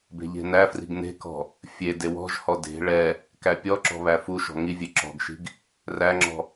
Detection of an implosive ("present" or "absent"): absent